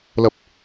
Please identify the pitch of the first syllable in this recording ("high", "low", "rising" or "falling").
high